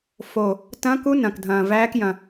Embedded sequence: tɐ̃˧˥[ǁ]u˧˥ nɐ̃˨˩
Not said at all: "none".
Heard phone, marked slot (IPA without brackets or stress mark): k